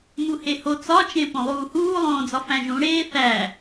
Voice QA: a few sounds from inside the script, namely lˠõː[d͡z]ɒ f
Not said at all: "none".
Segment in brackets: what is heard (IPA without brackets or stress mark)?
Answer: d͡z